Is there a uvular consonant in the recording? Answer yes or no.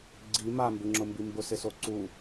no